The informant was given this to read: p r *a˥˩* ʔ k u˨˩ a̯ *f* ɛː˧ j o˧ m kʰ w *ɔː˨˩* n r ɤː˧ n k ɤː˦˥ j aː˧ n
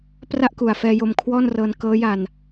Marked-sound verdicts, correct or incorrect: correct, correct, incorrect: ɔː˥˩

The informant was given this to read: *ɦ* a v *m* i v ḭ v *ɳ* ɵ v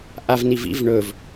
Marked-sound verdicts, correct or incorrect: incorrect: ʔ, incorrect: n, correct

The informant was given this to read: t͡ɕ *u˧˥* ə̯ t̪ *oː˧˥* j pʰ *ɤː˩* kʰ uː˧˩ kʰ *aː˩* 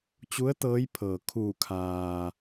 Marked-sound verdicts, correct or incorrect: correct, incorrect: ɤː˧˥, correct, correct

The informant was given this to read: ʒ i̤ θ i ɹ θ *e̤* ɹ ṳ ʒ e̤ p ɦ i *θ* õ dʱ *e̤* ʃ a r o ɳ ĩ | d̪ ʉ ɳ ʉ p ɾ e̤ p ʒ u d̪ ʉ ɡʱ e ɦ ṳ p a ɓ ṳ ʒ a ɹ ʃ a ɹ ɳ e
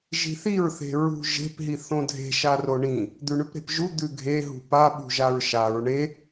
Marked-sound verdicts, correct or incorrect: correct, correct, correct

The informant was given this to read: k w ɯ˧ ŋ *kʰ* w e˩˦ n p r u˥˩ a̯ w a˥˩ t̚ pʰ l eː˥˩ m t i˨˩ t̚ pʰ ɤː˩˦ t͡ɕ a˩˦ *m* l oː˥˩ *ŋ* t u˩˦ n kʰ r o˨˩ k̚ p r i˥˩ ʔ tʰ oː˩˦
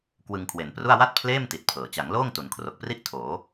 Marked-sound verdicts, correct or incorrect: correct, incorrect: ŋ, correct

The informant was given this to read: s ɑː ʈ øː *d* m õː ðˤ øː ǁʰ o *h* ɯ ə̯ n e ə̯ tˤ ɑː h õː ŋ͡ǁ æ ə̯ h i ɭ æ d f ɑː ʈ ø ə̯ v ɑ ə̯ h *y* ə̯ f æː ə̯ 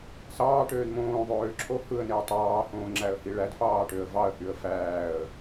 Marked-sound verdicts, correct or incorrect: correct, correct, correct

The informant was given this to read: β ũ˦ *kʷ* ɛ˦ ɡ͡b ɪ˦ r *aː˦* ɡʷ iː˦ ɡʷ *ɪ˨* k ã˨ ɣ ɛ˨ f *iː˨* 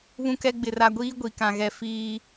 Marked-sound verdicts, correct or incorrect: incorrect: k, incorrect: a˦, incorrect: i˨, correct

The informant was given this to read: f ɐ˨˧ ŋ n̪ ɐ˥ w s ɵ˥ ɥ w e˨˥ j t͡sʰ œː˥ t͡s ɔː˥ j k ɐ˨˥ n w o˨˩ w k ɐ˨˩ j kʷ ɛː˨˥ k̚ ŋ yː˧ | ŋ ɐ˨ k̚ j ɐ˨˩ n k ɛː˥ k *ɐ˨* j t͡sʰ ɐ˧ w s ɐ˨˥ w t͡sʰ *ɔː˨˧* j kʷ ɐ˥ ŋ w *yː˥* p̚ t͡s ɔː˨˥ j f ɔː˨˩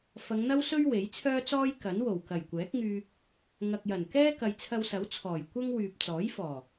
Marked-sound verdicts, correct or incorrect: correct, incorrect: ɔː˨˩, incorrect: yː˨

